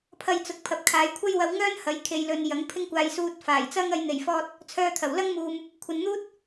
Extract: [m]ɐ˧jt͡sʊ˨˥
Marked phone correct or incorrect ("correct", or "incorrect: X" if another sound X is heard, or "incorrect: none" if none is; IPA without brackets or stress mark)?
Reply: incorrect: pʰ